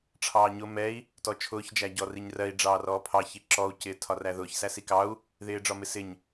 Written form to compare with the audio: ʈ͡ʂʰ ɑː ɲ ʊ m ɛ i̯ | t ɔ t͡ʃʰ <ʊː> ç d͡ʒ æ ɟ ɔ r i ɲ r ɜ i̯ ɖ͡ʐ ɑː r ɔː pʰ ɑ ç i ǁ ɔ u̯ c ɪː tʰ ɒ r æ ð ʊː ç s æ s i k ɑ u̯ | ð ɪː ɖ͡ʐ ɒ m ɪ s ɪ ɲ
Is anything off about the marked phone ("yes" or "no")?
no